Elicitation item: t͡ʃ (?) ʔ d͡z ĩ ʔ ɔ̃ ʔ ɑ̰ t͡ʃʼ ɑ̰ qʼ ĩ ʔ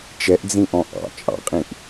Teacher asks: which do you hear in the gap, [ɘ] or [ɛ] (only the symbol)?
ɛ